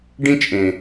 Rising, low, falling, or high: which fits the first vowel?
high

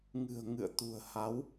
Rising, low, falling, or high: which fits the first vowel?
low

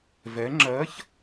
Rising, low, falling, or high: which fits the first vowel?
rising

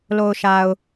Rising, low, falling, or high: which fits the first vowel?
low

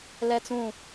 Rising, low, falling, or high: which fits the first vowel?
high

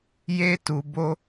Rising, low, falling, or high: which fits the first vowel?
high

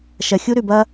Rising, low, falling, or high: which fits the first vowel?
low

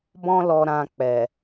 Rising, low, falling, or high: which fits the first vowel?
high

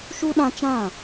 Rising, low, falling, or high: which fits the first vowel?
high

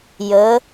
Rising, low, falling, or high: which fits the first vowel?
rising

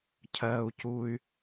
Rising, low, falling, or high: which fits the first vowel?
high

